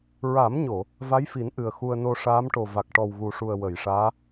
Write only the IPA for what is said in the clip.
ɹ a˨˩˦ m ɲ o˨˩˨ | v a˧˥ j f i˨˩˦ n ʔ ɨ˨˩ ə̯ x u˧ ə̯ n o˧ ʂ aː˧˥ m ʈ o˨˩ v a˨˩ k̚ ʈ ɔ˨˩ w ɣ u˨˩ ʂ u˨˩ ə̯ w ə˨˩˨ j ʂ aː˧˥

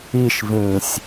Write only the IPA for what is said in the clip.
i ʃ v ĩː sʲ

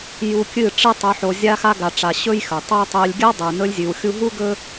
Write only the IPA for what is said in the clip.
j u˧ kʲ ɨ˦˨ ʈ͡ʂ ɨ˦ tˤ o˧ ħ o˧ zʲ a˧ x a˧ ɡ a˨ ʈ͡ʂ a˨ ɕ ɵ˦ j x ɵ˨ tˤ u˦ j tˤ ɨ˧ lʲ ɡʲ a˦ dˤ ʉ˨ n ɵ˧ lʲ zʲ ʉ˨ w xʲ u˧ ɦ u˦ ɡ ɵ˦

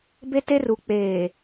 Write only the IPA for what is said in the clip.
b e˦ t e˦ r u˨ k͡p eː˨

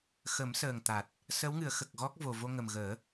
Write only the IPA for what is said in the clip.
x ə˨˩˦ m s əː˨˩ ŋ t̪ a˨˩ t̚ | s ə˧˥ w ŋ ɨ˨˩˦ ə̯ x ə˨˩ k̚ ɣ ɔ˦˥ k̚ v o˨˩ v o˧ ŋ ə˨˩ m ɣ əː˨˩˦

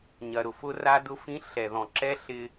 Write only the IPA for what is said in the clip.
ɲ ɐ˩ ɾ ʊ˩ f ʊ˧ r a˧ d ʊ˧ f ĩ˧ ɬ ɛ˩ ð ɔ̃˩ ǁ ɛ˧ ɬ ɪ˧

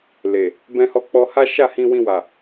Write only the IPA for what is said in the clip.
l e˨ | b ɛ̃˧ h ɔ˧ k͡p ɔ˧ h a˦ ʃ a˦˨ h ĩ˧ w ĩ˧ w a˨

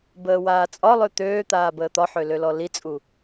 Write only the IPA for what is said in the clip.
b əː w aː t͡sʼ ɒ lˠ ø t̪ øː t̪ aː b əː t̪ ɒ ħ ø l ø l ɔ l i t͡sʼ u

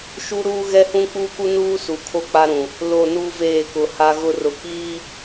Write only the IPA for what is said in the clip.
ʃ u˦ ɾ uː˦ ɣ ɛ˦ h ũ˦ k͡p uː˦ k u˦ n uː˦ s u˨ kʰ o˦ k͡p a˦ ɾ ũ˨ | l o˨ n u˦ v eː˦˨ k ʊ˨ h a˦ ɣ ʊ˦ r ʊ˨ k iː˦

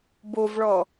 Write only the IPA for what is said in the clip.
b o v ɭ ɔ

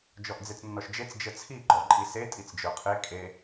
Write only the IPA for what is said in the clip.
d͡ʒ ɔ ʔ d͡z e t͡s nː ɔ ʃ d͡ʒ e t͡s d͡ʒ ə t͡sʰ i ɡ͡ǃ ɔ ǃʼ i s e tʼ i t͡s d͡ʒ ə˞ qʰ e kʼ e

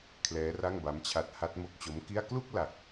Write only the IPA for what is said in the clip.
kʰ l ɛː˦˥ r a˥˩ ŋ b a˦˥ m t͡ɕʰ a˦˥ t̚ h a˦˥ t̚ m o˦˥ k̚ t͡ɕ o˦˥ m k i˥˩ a̯ k l u˥˩ k̚ l a˨˩ k̚

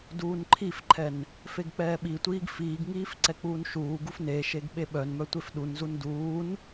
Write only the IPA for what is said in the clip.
d uː n ǃʰ i f ǃʰ ɛ n | f e ɡ k͡p ɛː ɓ i tʷ iː ɡ f iː ɡ ŋ iː f ǀ ɛ k͡p uː n ʃ uː ɡ u f n e ʃ e ɡ ɓ e ɓ œ n m œ tʷ e f ɗ u n z u n d uː n

